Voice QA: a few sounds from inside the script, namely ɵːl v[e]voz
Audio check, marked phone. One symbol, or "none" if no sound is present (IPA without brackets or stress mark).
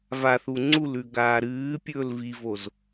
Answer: i